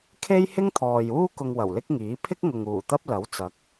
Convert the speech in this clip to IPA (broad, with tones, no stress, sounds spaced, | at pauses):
kʰ e˥ j h ɪ˥ ŋ t̪ʰ ɔː˨ j uː˥ k ʊ˧ ŋ w ɐ˨˩ w l ɪ˥ k̚ ŋ iː˨˥ pʰ ɪ˥ k̚ ŋ ʊ˨ ŋ uː˨˩ t̪ ɐ˥ p̚ l ɐ˨˥ w t͡s ɐ˨˥ k̚